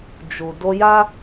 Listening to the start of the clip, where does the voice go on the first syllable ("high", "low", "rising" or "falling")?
low